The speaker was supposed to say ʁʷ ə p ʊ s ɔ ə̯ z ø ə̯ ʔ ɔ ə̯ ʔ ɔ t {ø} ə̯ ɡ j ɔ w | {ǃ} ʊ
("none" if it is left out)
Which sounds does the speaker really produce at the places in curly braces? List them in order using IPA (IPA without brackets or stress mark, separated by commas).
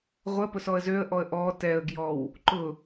ɛ, ǃ